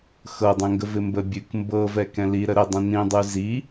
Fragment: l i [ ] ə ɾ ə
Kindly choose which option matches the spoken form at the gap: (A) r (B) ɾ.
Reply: B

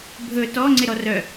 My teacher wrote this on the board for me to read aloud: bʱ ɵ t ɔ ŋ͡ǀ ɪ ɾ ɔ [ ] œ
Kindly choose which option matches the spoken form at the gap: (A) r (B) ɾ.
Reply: A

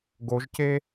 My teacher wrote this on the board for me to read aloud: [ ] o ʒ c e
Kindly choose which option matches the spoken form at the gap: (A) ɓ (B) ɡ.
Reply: B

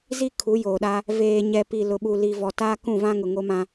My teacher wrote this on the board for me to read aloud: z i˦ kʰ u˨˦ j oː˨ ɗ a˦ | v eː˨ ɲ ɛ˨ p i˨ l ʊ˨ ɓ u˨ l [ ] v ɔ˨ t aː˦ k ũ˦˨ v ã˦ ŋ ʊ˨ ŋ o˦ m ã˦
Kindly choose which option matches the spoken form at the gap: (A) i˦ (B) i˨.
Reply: B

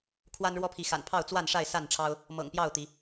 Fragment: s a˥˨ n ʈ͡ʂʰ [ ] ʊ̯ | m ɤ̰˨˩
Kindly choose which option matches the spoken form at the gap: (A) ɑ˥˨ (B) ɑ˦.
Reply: B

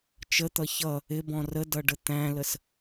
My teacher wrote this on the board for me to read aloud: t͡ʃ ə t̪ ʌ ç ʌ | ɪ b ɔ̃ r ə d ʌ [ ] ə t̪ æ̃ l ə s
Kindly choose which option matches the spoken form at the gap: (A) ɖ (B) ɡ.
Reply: A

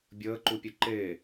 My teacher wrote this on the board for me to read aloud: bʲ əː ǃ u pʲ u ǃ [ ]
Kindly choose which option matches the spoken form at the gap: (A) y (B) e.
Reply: B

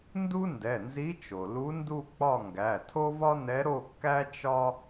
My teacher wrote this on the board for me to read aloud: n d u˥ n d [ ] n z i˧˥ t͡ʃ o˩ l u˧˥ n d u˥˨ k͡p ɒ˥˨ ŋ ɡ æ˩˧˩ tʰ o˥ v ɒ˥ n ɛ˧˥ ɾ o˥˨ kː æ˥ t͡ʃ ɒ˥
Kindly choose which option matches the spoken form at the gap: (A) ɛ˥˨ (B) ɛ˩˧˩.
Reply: B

